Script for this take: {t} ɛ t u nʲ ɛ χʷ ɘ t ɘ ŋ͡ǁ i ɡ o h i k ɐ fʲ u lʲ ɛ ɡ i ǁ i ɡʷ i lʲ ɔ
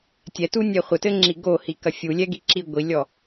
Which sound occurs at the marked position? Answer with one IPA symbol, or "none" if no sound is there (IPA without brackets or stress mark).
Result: tʲ